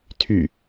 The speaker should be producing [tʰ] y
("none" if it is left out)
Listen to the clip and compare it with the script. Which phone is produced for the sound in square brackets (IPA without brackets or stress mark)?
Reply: tʰ